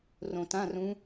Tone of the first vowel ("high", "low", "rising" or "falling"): low